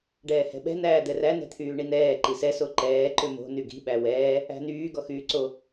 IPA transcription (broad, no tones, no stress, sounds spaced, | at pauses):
ɖ ɛː h ɛ̤ ɓ ɛ̤ n̪ æː d̪ ɛ r æ n ɛ̤ t̪ʰ yː ɳ i n̪ ɛː ǃ i s ɛ s o ǃ ɛː ǃ ʏ m o̤ n y ɡ i̤ ɓ æ w ɛː | æ̤ n yː ɡ ɔ x yː ǀ o